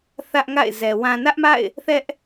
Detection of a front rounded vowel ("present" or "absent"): absent